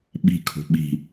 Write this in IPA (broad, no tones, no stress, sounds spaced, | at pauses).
ɓ i̤ kʰ o̤ ɓ i̤